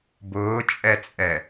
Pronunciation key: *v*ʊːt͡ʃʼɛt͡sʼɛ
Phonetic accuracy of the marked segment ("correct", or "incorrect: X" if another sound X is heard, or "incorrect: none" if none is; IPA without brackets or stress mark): incorrect: b